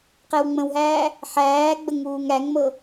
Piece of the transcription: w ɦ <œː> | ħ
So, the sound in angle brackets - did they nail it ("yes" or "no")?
no